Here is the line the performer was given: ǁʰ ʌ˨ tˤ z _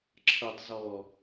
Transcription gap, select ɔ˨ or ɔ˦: ɔ˨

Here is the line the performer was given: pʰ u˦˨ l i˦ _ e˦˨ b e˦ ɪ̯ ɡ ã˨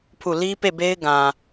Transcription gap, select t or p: p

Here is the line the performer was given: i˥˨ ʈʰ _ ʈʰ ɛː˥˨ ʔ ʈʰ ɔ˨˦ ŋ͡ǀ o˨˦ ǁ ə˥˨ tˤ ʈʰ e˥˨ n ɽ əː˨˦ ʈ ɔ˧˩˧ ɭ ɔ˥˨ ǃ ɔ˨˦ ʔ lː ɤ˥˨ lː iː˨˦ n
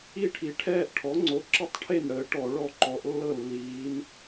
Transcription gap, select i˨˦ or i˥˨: i˨˦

